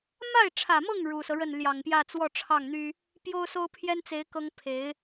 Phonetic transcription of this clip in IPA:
m a˥˩ ɪ̯ ʈ͡ʂʰ ä˨˩ m ɤ˥˩ ŋ ɻ u˨˩ s ɤ˦ ɻ ə˥˩ n l j ɑ˨˩ ŋ p j ä˥˧ t͡s w ɔ˥˧ ʈ͡ʂʰ ɑ˥˩ ŋ n̪ y˥ | p j o˥ ʊ̯ s o˥ ʊ̯ pʰ j ɛ˥ n t͡s e˧˥ ɪ̯ k ɤ˥ ŋ pʰ e˧˥ ɪ̯

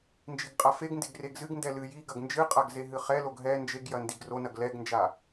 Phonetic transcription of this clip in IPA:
n d͡ʒ i ɡ qʼ a f e ɡ n d e ɡ r e ɡ z ɨ ɡ n d ɛ l ɨ j i ɡ ɐ ɡ n d͡ʒ ɨ qʼ a ɡ z e ɦ ɨ χ ɛ l o ɡ ɦ ɛ n d͡ʒ e ɡ j ɐ n d i ɡ r o n ɐ ɡ l ɛ ɡ n d͡ʒ a

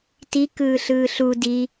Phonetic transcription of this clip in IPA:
t i k ɯː ɬ ɯː ɬ u d i

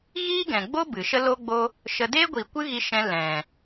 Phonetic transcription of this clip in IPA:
ɣ iː˦ ɡ ɛ̃˨ ɡ͡b o˦ b ɨ˨ ʃ ə˦ l o˦ ɡ͡b o˦ | ʃ ə˧ d eː˦ ɡʷ i˨ kʷ ɨ˦ ɣ i˧ ʃ ɛ̃˧ l ɛ̃˨

